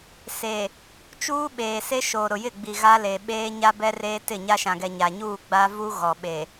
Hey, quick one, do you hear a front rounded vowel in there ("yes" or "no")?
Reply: no